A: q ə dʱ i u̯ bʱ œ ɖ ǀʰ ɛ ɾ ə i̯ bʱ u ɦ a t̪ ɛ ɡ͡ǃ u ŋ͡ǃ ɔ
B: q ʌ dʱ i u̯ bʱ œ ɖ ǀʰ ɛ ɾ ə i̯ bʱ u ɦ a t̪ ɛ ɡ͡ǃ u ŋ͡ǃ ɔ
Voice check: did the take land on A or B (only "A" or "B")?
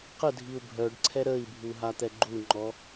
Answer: A